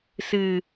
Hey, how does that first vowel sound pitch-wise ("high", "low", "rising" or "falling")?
low